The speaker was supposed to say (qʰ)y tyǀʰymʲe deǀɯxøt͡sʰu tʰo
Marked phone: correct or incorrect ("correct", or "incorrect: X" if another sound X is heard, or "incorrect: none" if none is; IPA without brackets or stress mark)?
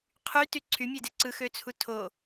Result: correct